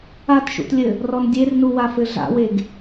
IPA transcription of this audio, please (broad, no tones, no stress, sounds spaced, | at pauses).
a t ʃ ṵ t lʲ ɘ | r ɔ n dʲ e r n u w a f ɘ ɮ a̰ w e ɡ